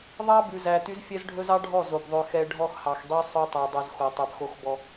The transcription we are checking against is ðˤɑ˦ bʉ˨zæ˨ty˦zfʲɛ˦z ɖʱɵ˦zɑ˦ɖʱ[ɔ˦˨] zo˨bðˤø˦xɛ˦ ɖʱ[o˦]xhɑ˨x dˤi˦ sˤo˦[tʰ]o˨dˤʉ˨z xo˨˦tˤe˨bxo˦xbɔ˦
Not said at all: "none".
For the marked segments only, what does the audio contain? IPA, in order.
ɔ˦˨, ɔ˦, tˤ

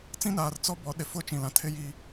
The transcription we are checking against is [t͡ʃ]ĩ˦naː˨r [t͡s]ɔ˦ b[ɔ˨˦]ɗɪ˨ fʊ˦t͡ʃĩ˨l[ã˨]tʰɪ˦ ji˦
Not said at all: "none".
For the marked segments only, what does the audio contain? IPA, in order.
t͡s, t͡s, ɔ˨˦, ã˨

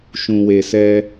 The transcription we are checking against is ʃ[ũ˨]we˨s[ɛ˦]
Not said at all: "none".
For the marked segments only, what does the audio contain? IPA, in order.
ũ˨, ɛ˦

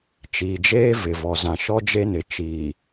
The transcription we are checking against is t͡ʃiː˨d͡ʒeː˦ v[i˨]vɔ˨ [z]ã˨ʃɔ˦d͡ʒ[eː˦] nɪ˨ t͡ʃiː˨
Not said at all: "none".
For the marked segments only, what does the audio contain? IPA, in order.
ɪ˨, z, e˦

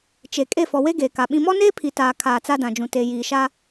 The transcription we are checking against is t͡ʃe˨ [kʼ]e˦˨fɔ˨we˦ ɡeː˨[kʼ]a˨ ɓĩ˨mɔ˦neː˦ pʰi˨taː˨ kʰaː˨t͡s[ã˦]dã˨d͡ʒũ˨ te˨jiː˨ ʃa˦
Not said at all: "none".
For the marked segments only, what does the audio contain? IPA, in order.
kʼ, k, a˦

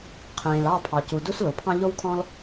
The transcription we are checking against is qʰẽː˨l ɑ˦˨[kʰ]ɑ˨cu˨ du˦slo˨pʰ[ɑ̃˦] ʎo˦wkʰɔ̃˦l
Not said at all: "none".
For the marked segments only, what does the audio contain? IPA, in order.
pʰ, ɑ̃˦

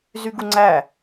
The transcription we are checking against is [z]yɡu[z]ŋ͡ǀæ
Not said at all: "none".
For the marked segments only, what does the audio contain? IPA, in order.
z, none

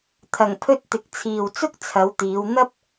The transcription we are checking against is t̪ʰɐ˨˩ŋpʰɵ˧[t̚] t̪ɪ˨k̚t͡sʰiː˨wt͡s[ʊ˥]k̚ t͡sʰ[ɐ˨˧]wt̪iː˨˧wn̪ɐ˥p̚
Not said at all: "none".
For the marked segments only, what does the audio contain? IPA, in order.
t̚, ʊ˥, ɐ˨˧

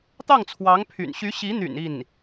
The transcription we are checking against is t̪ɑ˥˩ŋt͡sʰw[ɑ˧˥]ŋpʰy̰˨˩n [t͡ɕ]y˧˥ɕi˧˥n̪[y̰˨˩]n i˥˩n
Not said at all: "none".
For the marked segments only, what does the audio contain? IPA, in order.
ɑ˧˥, ɕ, y̰˨˩

